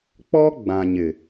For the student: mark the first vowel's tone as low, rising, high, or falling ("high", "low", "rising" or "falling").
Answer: high